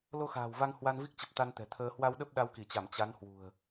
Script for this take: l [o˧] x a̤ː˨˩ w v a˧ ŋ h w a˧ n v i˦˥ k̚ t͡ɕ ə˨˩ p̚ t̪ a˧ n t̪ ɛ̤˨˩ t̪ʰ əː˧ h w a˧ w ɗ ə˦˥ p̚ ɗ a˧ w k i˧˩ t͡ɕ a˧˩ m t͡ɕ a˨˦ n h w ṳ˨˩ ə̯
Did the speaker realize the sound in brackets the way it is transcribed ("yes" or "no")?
yes